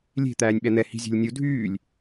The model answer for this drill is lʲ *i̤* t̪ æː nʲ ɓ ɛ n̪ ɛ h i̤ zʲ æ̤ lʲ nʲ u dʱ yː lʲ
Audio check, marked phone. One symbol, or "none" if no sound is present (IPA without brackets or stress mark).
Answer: e̤